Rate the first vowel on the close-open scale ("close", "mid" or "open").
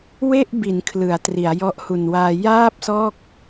mid